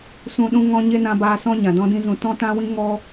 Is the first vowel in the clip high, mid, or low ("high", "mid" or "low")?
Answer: high